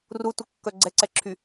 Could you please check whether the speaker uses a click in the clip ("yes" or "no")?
yes